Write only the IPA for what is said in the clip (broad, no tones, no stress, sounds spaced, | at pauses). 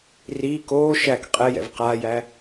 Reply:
r iː k oː ʃ æ k qʼ ɛ j ɛ̰ v q aː j æ